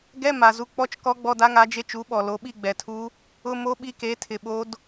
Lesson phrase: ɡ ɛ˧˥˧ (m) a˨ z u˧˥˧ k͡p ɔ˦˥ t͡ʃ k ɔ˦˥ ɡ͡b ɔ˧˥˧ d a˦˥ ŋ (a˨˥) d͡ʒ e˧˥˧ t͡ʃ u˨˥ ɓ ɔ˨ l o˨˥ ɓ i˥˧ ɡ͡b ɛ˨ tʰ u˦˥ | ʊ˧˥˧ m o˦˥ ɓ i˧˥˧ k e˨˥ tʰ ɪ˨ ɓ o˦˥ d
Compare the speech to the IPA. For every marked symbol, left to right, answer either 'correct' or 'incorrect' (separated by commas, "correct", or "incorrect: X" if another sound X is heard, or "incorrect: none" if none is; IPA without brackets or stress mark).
correct, correct